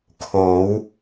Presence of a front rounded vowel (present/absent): absent